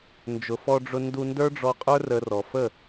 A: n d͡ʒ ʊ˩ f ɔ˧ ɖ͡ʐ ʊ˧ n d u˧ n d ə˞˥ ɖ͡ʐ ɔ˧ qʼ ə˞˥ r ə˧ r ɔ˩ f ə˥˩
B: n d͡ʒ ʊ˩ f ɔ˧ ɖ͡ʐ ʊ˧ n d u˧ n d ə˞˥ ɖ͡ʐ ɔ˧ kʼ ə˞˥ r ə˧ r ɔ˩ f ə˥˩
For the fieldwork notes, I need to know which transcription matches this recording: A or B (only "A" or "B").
A